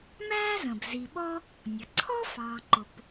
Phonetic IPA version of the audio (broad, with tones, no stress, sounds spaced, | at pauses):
m æː˥ z ə̃˩ b z i˨ ɓ ɔ˥ | nʲ ʌ˩ ǀʰ ɔ˥ f ɑː˨ ǃ ʊ˨ p